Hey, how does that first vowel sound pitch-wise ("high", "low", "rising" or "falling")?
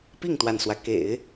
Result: falling